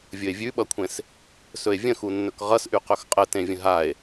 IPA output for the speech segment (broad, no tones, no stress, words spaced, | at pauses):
vʲɵe̯vʲʉɓʌkʷʰẽs | sɵe̯vʲə̃xunːɵk ʁʌsʔy qɵxqʼətẽvʲə̃ ɦae̯